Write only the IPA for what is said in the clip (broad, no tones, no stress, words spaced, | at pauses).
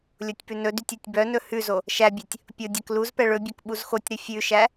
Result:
lʲotʲpʉnɵdytʲ ɛtʲbœnɵ hʉzo | ʃæbʲɛtʲ | pʲo dʲɛkluzpɛ ɭɵbʲœk ɓuzxotʲɾʉ fʲʉʃæ